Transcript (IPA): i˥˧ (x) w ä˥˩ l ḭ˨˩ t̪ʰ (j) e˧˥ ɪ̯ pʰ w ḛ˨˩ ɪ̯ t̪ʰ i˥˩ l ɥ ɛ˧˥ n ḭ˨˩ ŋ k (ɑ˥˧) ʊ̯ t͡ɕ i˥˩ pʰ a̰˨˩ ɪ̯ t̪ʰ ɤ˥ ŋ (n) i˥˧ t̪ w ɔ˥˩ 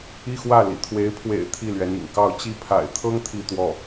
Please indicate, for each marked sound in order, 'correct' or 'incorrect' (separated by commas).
correct, incorrect, correct, incorrect